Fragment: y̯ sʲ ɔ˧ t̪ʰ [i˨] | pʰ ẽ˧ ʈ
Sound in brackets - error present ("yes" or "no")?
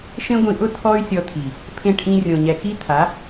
no